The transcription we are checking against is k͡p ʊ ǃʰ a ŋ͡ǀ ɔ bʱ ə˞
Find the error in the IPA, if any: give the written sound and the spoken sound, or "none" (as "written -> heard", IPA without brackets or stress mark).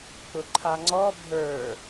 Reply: none